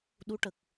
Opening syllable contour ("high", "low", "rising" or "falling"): rising